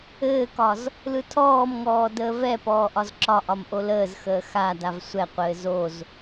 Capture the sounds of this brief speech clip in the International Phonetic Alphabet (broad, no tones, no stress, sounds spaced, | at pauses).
ɘː k ɒ z | l ɯ tʰ ɔː m ŋ ɔː d əː v ɛ p ɔː ʔ ɒ z ǁ ɒ ʔ ɒ m ʔ o l əː z x əː x a d a v sʷ ɛ qʷ ɘː z o z